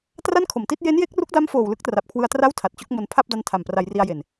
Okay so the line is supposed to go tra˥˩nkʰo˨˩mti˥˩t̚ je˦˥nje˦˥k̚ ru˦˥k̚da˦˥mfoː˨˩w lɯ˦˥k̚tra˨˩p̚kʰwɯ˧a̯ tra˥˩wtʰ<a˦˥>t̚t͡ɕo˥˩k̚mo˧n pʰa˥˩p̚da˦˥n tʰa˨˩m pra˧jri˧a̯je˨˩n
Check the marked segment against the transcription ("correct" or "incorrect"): incorrect